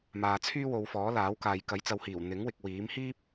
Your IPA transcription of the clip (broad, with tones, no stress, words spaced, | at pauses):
maː˨t͡sʰyː˥wo˨˧wfɔː˨˥ laː˨˥wkaː˨j kɐ˨˥jt͡sɐ˨˧whiː˨˩w n̪ɪ˨˥ŋ wɪ˨k̚wiː˨˥m hiː˥p̚